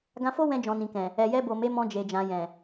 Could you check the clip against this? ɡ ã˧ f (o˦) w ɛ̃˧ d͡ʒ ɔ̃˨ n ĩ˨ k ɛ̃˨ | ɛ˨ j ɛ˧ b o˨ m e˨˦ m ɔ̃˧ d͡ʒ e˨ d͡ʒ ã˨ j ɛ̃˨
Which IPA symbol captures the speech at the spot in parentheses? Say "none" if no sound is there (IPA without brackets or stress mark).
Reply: o˦